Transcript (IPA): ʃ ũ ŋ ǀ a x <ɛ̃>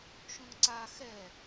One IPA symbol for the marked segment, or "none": ɛ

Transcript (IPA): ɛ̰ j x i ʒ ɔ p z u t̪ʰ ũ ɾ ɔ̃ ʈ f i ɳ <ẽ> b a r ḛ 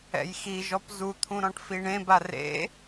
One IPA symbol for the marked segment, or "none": ẽ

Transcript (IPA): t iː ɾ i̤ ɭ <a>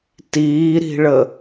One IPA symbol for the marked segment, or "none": ə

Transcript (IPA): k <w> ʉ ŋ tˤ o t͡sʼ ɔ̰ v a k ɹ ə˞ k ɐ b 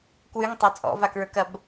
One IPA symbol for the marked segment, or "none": w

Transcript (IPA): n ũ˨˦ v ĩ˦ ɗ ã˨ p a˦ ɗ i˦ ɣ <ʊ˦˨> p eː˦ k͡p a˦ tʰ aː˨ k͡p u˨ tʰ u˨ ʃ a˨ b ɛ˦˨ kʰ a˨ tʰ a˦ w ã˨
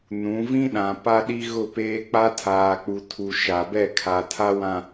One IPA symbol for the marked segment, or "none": ʊ˦˨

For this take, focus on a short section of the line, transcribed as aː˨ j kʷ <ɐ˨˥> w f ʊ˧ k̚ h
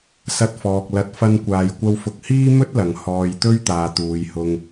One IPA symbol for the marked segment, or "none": ɐ˧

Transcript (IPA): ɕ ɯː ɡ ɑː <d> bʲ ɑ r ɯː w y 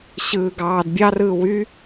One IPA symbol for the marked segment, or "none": d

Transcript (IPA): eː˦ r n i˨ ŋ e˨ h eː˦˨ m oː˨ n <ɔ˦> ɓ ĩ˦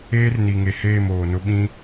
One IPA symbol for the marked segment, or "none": ʊ˦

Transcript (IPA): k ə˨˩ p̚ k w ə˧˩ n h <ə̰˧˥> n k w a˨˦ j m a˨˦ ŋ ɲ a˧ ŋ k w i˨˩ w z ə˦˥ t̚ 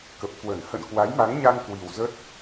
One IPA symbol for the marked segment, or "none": ə̰˧˨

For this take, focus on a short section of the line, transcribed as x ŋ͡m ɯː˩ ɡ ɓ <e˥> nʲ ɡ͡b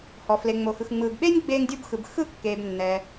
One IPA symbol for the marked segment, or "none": e˥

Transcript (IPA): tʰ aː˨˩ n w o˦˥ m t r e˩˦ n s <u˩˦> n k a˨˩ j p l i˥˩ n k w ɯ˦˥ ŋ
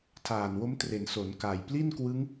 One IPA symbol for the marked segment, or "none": o˩˦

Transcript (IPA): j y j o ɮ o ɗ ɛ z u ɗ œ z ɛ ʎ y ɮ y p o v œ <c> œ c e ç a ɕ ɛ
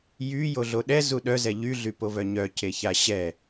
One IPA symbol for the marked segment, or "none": ɲ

